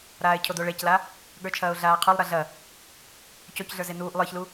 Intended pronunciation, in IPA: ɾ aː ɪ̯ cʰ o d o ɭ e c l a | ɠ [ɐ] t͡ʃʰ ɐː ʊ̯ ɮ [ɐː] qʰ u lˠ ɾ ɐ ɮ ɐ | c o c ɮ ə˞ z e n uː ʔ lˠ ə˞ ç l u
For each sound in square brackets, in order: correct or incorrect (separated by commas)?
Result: incorrect, incorrect